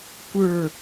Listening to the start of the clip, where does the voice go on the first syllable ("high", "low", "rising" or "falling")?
falling